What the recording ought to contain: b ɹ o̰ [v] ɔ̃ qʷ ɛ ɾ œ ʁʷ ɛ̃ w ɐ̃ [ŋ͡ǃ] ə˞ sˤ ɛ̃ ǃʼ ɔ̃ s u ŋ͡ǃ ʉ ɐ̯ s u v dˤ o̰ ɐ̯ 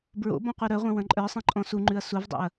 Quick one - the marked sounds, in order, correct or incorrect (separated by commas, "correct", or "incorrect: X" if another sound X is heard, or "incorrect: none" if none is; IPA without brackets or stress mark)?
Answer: incorrect: b, incorrect: ǃʼ